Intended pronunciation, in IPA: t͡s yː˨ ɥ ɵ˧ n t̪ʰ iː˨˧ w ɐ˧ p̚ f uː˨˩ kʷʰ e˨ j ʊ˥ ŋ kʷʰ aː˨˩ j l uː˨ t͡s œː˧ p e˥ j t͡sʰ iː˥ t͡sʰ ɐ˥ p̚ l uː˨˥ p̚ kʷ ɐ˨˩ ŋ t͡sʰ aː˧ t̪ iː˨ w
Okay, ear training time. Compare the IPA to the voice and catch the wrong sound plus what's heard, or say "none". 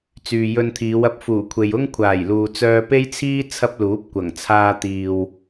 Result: ɥ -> j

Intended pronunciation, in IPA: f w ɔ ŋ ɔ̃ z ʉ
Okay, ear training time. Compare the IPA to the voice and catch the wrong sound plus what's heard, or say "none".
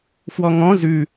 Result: none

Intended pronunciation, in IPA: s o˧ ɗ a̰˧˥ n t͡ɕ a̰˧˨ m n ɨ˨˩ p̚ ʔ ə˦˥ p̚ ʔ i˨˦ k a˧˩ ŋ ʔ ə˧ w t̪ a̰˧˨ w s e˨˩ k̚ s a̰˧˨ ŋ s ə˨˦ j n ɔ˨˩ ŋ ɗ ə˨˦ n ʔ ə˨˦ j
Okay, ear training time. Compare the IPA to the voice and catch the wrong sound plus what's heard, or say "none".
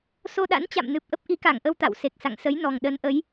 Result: none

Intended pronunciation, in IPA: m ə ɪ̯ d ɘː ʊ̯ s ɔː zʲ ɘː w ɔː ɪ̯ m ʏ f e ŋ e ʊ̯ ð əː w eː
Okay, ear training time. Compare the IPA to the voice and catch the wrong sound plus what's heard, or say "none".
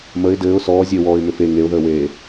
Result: none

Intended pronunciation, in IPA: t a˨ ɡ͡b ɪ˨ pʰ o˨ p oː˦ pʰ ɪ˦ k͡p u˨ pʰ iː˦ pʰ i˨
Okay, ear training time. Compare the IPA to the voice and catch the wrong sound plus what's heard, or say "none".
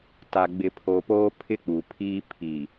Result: none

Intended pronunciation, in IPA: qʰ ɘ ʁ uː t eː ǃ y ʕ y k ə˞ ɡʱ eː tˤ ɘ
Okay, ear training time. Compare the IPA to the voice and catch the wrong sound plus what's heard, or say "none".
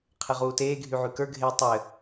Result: ǃ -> ɡʱ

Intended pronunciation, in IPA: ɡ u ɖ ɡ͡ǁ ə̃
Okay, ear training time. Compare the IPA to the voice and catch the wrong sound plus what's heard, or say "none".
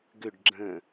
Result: u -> ʏ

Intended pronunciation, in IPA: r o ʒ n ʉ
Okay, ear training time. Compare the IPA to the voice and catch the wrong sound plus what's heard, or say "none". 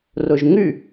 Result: n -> ŋ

